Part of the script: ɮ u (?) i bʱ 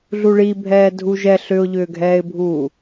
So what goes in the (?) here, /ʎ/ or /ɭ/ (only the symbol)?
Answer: ɭ